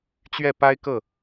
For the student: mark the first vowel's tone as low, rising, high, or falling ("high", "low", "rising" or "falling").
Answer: falling